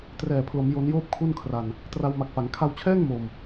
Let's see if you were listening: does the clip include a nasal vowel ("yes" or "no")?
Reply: no